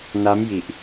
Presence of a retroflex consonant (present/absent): absent